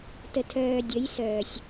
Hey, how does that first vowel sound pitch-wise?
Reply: low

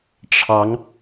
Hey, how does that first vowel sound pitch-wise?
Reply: rising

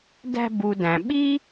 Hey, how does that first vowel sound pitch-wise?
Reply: high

